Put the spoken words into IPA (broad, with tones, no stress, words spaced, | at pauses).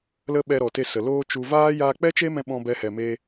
lə˦ɓɛ˧ɾɔ˨te˧ sə˨loː˦ t͡ʃu˧ vaː˦ jaː˧k͡pɛ˦t͡ʃe˦mɛ̃˧ ɓɔ̃˦bɛ˦hɛ˧ me˦